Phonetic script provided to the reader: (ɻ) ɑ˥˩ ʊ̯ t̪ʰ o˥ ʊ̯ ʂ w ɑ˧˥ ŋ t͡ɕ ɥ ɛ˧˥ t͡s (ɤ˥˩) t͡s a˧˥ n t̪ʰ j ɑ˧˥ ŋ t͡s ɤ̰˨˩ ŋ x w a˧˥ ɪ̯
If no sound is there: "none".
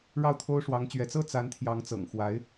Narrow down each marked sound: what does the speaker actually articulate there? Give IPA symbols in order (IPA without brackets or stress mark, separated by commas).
ɻ, ɤ˥